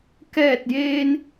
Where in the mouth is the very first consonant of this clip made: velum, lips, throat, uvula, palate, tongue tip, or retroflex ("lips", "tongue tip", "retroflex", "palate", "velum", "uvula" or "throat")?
velum